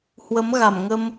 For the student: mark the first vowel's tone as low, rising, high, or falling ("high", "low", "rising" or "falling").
rising